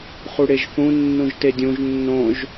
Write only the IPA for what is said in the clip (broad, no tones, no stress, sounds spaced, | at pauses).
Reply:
χ u ɽ e ʒ θ ũ nː ũ ʒ t e dʲ ũ ʒ nː õ ʒ